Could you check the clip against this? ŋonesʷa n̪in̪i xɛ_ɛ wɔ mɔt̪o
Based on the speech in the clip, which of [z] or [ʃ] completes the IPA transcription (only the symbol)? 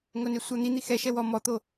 ʃ